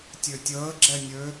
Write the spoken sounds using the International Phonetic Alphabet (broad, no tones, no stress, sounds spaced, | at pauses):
tʲ ø tʲ əː ɡ͡ǁ ɛ nʲ ø